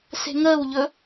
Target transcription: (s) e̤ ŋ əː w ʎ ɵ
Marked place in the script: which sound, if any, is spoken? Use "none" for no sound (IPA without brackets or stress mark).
s